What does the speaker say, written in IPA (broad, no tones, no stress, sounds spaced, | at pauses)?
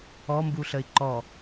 ɔ m b u ɬ ə i̯ ǃ ɔ